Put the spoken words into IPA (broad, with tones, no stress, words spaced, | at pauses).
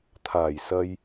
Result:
t̪ʰaː˨˩jsɐ˧j